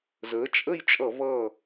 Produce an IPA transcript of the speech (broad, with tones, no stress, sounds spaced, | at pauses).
z əː˩˥ t͡ʃʼ ə˥˨ j t͡ʃʼ ʌ˧˩˧ v ʌː˧˩